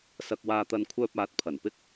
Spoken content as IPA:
s ɐ˧ k̚ w aː˧ t̪ ɐ˧ n kʷʰ œː˧ p̚ aː˨˥ t̚ pʰ ɐ˨˩ n p ɪ˥ k̚

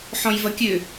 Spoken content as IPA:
ħ ɔ̃ j v ɐ kʲ ø

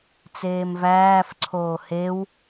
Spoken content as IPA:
t͡s eː m v æː f ǀʰ oː h e w

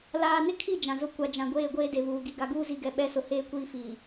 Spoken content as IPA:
l aː˨ n ɪ˦ kʰ i˦˨ d͡ʒ ã˨ z ʊ˦ kʷ a˨ d͡ʒ ã˨ ɡʷ eː˦˨ ɡʷ eː˦ d e˨ β uː˨ ɡ i˨ ɡ a˨ ɡ uː˦ z i˨ ɡ ɛ˨ ɓ ɛ˨˦ s ʊ˨ h eː˦ kʷ iː˦ f iː˨

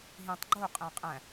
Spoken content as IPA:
ɦ ĩ tˤ ɡ͡ǃ o qʼ æ̃ qʼ æ̃

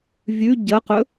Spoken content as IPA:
vʲ ʉ ɟ ɐ q ɵ

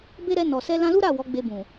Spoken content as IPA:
b e˦ ɾ ɛ˧ n ɔ˨ s ɛ˧ l ã˧ l u˦ ɾ a˦˨ w ɔ˨˦ ɡ͡b e˧ b ũ˨

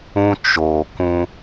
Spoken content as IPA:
ũ˦ t͡ʃ oː˨ k ũ˧

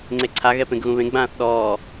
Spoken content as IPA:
ŋ͡ǀ e ǀʰ a ɣ ɛ p ẽ ɡ ɣ ũ β ẽ ɡ͡b ãː θ ɗ ɔː

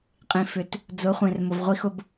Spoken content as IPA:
qʼ ĩ˨ f ʏ˨ t | d͡z ʊ˨˦ χʷ ẽ˨ r m ʊ˨ v ʁʷ i˦ x ʊ˦ b

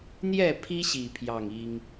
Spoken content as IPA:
n̪ j ɛ˥˨ pʰ i˦ ɕ i˥˨ pʰ j ɑ˥˨ ŋ i˦ ŋ

